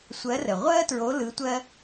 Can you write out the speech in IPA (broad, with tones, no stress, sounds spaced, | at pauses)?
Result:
sʷ ɜ˧˥ r ə˨˩ ʁʷ ɜ˥ t ɹ o˧˥ l ɯ˧˥ tʷ ɜ˥